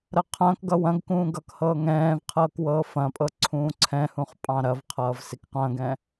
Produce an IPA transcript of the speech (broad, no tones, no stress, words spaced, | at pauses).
ɾɐqʰɐ̃ːkɡʌ wɐ̃ɡkũː ɡʌk hɤːŋɛ̃ːvqʰɤːk wɤːfɐ̃pʼɤ ǀʰũːǀʰɛ̃hũχ pʼɑ̃ɾɐvqʰʌːv sikqɐ̃ːɡɛ̃